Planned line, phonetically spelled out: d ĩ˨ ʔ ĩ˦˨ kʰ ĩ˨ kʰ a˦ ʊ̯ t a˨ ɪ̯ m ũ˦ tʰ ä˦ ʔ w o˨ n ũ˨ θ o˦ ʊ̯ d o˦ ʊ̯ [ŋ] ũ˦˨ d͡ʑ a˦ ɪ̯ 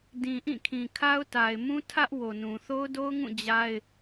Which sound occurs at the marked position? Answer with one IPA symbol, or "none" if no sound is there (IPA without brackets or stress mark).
ŋ